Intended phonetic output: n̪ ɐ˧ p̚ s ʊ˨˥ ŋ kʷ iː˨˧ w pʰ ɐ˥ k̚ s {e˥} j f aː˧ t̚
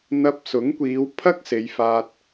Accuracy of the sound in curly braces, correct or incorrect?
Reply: incorrect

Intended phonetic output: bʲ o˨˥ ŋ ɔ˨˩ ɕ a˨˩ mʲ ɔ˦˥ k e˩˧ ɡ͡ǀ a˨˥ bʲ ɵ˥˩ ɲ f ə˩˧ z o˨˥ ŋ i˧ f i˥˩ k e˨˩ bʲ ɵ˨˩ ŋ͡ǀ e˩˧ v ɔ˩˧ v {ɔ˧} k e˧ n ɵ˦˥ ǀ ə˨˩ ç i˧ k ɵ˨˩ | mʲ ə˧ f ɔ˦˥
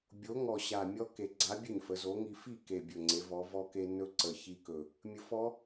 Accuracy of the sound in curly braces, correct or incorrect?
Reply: correct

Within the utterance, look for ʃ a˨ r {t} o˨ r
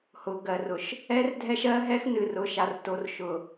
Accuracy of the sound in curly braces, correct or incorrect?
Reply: correct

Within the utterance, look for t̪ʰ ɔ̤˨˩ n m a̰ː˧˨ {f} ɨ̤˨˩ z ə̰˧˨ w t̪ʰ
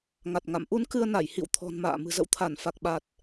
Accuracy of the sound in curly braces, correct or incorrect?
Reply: incorrect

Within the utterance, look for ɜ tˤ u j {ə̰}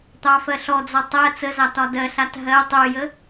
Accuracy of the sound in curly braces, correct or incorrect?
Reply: incorrect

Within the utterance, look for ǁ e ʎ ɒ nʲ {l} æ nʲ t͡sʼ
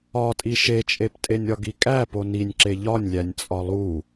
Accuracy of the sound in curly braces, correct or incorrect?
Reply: incorrect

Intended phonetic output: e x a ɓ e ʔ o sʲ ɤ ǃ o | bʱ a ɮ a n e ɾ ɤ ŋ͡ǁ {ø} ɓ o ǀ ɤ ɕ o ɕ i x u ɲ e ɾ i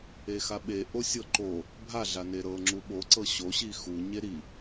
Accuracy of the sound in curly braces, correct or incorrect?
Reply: incorrect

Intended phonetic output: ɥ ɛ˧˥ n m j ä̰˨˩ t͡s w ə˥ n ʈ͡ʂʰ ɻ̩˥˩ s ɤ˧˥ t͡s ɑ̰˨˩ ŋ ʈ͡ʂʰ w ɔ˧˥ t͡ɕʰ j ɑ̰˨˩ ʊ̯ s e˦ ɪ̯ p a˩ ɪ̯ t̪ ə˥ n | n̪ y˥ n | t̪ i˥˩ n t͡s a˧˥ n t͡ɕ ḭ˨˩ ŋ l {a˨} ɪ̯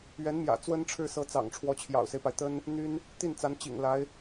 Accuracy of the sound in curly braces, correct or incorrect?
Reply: incorrect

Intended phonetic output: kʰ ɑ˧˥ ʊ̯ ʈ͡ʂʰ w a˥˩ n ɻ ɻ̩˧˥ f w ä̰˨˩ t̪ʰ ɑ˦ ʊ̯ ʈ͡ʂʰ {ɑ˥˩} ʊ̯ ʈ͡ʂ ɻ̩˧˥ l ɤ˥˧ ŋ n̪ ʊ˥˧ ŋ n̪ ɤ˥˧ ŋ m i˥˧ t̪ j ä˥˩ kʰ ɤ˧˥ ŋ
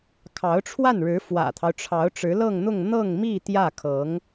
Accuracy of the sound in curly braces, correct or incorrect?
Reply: incorrect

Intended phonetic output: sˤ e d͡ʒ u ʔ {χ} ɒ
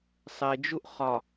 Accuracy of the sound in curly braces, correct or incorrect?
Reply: correct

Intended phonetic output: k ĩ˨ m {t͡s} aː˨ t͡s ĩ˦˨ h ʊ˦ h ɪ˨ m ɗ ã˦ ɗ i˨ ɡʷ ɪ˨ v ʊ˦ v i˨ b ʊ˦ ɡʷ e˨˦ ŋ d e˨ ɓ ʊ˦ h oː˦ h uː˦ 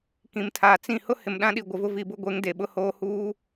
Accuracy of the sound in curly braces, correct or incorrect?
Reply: incorrect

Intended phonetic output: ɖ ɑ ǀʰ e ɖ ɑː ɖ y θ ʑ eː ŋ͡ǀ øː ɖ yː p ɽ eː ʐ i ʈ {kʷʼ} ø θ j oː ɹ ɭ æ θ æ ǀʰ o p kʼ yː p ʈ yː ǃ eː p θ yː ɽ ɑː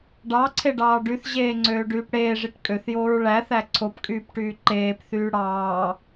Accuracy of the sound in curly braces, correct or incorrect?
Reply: incorrect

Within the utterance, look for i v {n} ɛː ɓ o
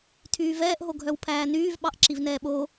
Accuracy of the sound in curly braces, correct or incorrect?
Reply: correct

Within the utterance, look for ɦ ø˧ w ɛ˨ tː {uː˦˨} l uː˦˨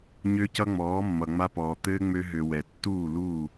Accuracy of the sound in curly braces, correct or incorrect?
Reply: correct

